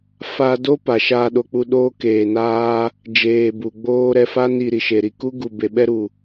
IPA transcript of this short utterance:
fa˦ do˦ pa˨ʃaː˧ɗo˧k͡pu˧ ɗoː˦keː˨naː˦ | d͡ʒeː˨ bu˨ɡ͡boː˦ ɾɛ˧fa˦ni˨ ɾi˨ʃe˨ɾi˧ ku˦ ɡu˨be˨ɓɛ˧ ɾu˨

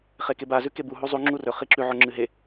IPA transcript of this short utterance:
χekeba zʉkebu ɦuzˤu ŋ͡ǁurɵ χiǁʉ ʕoŋ͡ǁɨɦe

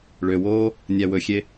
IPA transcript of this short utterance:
ɭøwoː | nʲæwɵxʲe

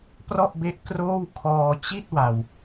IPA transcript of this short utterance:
prɔ˥˩ʔbe˦˥ʔ kroː˥˩w kʰɔː˧ t͡ɕi˥˩t̚ wa˨˩w

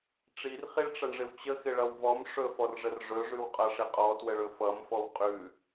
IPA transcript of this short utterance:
ʈ͡ʂirχiɭʈ͡ʂʌɳʐɪw t͡ɕəxɪɭʌw vɔm ʂɵfɔrʐər ʐɵʐʉwqʼʌʂɪ qʼɔtwəɭɵ fʌmfɔw qʼʉ

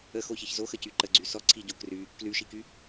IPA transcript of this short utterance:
əxoçiç zoxəcy ǃəɡ͡ǀy sɔǀʰiɟo kry | klyʃiky

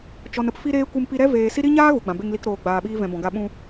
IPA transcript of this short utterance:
t͡ʃɔ˨nə˧p fi˦ɾeː˦ kʷɨ˧mpi˧ɾɛ˦ veː˨ si˦ ɾi˦ɲaː˦ ɣu˨ɡ͡bã˨be˧ŋli˧k ɾoː˨ ɡ͡baː˨ ɓiː˧vɛ̃˨ bɔ̃˨ɡa˧ ɓũ˧

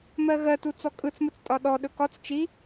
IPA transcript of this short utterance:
mɜɣɜtu t͡sɔkʼɯt͡smɯt͡stʼɒ ɗɔɗɵ kɒt͡s t͡ʃi

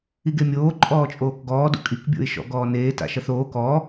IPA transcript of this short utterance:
iɡemʲoː ǃʼɔːt͡ʃʼoːkɡɔː dṵkʼik bʲo̰ɪ̯ʃɔ̰ɡɔːneː ta̰ʃʌθoː kɔ

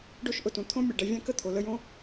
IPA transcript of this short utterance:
ɖo˦ʃʔʊ˨tũ˩ t̪ʰõ˦ mʲɛ˩ɖɛ˨ vʲã˥ kə˥t̪ʰo˩lə˦jõ˥

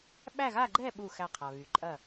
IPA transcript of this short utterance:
ɓæ˥˧ɣa˥˧ ɡ͡ǃɛ˥˧ɓu˧˩ xæ˧˩qʰa˩ βy˩ǃʼɐ˧˩

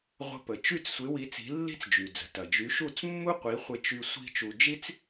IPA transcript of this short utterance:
ʁʷə̤˧pə˩ t͡ʃy˥˩t͡ssʷɪ˩˥wi˩˥ t͡si̤˩˥lːi̤˥t͡sd͡ʒy˩d͡zə̤˩ tɐ˩d͡ʒy˩˥ʃu˥˩t͡s mːu˥qʷi˩˥χʷɪ˧t͡ʃy˧ sʷi̤˥t͡ʃu˧ d͡ʒi˥t͡s

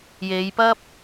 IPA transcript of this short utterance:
je˨˧jpɐ˥p̚

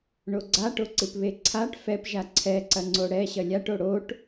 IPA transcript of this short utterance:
ɳoɡ͡ǀaʈoǀɨp βeǀʰaʈ fɛpʒa ǀʰɛǀɐŋ͡ǀo ɽɛ ɕɐlʲaʈo ɽoʈ

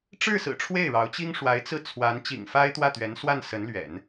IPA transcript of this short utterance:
ʈ͡ʂɻ̩˥˩sɹ̩˨˩ ʈ͡ʂʰwe˥˩ɪ̯ɻɑ˧˥ʊ̯t͡ɕi˥ŋ ʂwa˧˥ɪ̯t͡sɹ̩˥˩ t͡sʰwa˧˥n t͡ɕḭ˨˩ŋfa˥ɪ̯ t̪wä˥˩t̪ɥɛ˧˥nswa˥˩n sə˧˥nlɥɛ̰˨˩˦n

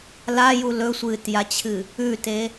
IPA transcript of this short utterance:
laju lɵsʷɨːtjat͡ɕʰɨ | ʉte

